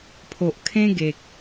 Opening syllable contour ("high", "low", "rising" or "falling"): low